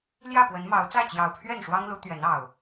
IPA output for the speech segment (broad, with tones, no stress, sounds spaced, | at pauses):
l j ä˥˨ p w ə˨˦ n m ɑ˨˦ ʊ̯ t͡s ä˥˨ t͡ɕ j ɑ˨˩ ʊ̯ pʰ ɥ ɛ˥˨ n ʂ w ɑ˦ ŋ l u˨˦ t̪ ɥ ɛ˨˦ n ɑ˨˩ ʊ̯